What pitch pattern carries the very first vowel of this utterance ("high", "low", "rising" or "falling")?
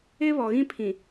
high